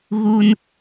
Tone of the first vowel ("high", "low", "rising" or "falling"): high